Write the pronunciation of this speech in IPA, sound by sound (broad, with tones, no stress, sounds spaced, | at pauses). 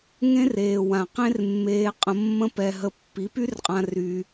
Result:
ŋ ẽ˦ r eː˨ w ã˨ q ẽ˦ r mː eː˧ qʼ ə̃˧ mː ə̃˦ p ɛ˧ ɦ ə˧ pː i˨˦ p y˦ r qʼ ã˧ r y˧